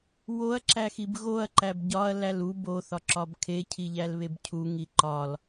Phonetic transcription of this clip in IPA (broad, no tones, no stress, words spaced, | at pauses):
woɐ̯ǁæxib ɣoɐ̯ǃæb ɟɒɐ̯læl ub oθɒǁɒb kʰecʰiʎælβeb cʰuŋi ǃɒl